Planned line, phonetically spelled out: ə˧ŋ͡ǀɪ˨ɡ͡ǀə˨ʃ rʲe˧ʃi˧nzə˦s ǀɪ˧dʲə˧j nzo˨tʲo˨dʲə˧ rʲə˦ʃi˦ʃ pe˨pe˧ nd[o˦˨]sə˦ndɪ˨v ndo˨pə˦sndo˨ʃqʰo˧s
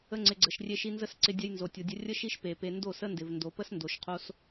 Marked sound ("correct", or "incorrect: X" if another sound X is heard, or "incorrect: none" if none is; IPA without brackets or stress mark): correct